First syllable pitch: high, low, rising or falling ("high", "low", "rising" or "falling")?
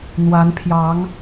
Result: rising